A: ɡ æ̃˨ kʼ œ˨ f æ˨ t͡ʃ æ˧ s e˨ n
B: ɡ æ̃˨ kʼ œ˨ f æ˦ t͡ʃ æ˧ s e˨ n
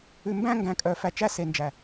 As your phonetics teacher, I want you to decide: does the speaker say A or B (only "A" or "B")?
A